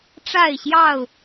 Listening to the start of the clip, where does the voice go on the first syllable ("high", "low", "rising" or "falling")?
falling